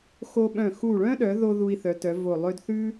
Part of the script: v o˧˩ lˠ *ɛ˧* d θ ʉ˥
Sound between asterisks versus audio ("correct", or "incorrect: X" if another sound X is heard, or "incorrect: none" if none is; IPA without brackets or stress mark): incorrect: ø˧